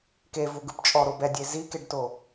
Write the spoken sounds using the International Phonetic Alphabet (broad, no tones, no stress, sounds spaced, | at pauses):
k e v u ɡ ɯ p t͡ʃʼ ɔ ɾ o b ɛ dʲ e z i k e ɖ t o